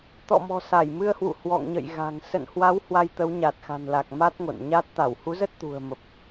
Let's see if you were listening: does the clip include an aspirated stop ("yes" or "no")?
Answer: no